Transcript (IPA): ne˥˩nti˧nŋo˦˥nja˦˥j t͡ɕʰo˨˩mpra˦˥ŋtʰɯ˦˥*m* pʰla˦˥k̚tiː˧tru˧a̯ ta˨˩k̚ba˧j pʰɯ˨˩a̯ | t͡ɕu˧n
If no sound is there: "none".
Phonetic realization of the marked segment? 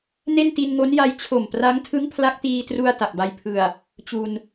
ŋ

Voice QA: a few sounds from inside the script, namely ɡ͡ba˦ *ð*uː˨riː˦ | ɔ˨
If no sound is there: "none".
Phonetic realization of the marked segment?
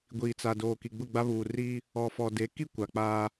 β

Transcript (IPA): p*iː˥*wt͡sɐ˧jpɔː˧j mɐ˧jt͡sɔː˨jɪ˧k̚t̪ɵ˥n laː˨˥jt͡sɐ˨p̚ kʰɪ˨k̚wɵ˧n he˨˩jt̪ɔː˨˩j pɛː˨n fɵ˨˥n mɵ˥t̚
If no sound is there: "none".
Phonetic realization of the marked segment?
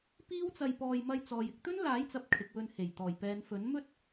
iː˥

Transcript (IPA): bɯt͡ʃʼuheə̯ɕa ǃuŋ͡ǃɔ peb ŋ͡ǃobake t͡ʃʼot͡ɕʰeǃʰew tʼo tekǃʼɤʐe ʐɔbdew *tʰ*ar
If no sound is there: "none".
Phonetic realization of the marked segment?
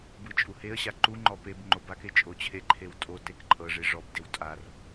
tʼ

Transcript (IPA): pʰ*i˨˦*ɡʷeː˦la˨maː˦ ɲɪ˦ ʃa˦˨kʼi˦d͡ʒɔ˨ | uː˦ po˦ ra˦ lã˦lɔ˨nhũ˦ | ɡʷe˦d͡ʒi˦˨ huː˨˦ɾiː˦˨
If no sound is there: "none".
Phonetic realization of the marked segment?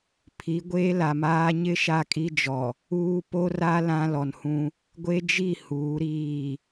i˨˦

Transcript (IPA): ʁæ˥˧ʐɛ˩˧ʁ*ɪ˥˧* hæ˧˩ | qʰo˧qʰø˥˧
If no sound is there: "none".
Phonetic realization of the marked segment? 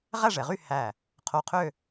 y˥˧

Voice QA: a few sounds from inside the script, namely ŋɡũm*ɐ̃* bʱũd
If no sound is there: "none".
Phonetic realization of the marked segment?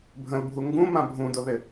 ã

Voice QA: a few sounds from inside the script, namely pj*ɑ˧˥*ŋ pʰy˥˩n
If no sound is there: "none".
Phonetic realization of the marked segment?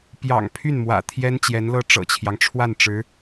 ɑ̰˨˩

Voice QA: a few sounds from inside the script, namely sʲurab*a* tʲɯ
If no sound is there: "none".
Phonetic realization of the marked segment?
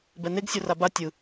a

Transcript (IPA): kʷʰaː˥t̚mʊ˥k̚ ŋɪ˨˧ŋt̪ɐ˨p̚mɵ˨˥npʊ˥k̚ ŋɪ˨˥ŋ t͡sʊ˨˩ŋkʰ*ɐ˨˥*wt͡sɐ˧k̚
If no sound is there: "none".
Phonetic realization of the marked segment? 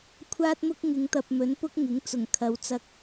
ɐ˨˧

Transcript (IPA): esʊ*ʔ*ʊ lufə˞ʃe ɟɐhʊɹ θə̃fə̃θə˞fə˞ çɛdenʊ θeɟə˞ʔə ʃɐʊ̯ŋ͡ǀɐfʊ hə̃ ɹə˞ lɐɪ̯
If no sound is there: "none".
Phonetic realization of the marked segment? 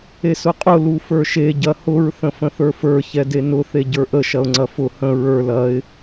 qʼ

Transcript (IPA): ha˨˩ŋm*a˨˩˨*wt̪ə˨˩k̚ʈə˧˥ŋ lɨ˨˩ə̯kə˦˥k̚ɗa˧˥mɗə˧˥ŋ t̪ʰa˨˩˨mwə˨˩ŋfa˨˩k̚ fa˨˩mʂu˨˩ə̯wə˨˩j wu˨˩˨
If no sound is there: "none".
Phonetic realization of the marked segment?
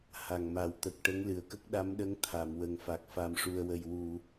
a˨˩˦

